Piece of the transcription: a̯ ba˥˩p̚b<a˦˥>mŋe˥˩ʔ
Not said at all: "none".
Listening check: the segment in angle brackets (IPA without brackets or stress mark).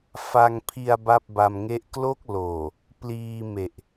a˧